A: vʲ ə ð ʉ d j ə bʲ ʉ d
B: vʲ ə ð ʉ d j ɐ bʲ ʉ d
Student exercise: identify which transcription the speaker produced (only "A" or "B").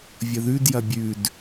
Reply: B